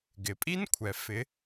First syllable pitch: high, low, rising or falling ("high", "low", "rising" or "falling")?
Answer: low